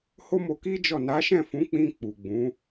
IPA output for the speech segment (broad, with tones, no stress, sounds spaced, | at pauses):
h o˦ m o˧ k i˦ d͡ʒ ɔ˦˨ n a˨˦ ʃ ɛ̃˦˨ f ũ˨˦ k͡p ĩ˧ k͡p u˨ ɡ͡b ũ˨˦